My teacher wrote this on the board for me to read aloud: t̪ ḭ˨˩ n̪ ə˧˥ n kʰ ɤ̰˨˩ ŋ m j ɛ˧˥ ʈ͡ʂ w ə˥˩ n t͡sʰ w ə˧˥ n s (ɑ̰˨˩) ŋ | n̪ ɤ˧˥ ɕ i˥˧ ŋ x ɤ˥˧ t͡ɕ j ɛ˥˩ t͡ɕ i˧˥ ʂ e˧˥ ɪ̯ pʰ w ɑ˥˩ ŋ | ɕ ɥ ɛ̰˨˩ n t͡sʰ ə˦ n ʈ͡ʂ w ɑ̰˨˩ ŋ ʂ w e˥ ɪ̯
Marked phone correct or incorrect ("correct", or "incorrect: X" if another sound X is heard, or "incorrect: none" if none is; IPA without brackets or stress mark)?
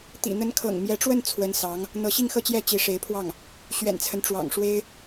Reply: incorrect: ɑ˧˥